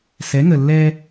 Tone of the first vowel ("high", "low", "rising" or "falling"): rising